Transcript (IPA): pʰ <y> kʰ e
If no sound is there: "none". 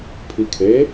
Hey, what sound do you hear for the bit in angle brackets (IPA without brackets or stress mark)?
i